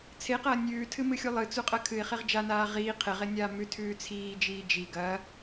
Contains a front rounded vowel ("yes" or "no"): no